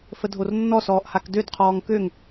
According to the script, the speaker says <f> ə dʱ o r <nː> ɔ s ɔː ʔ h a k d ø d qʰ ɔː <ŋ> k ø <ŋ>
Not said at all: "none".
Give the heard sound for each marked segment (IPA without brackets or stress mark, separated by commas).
f, nː, ŋ, ŋ